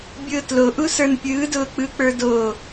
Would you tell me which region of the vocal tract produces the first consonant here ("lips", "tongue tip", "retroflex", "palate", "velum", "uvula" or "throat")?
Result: lips